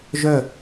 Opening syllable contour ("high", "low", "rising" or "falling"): falling